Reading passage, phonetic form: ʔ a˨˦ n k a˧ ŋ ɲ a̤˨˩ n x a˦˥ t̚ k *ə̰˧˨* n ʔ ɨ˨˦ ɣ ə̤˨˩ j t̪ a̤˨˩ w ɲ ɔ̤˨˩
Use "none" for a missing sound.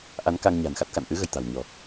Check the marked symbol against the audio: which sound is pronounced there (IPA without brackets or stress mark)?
a̰˧˨